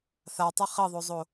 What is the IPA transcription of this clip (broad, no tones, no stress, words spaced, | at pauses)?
θatˤɘ χɘðˤozˤo